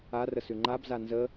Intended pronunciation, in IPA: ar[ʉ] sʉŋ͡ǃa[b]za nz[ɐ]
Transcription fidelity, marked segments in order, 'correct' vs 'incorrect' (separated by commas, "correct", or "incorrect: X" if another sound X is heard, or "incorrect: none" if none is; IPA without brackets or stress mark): incorrect: ə, correct, incorrect: ə